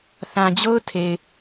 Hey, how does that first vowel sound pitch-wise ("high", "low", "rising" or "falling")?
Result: low